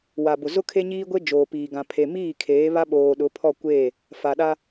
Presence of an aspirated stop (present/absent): present